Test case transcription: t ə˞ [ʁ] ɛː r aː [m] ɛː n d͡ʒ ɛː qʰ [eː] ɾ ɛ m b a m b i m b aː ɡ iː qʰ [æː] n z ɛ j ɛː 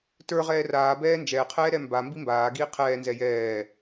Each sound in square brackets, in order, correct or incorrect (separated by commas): correct, incorrect, incorrect, incorrect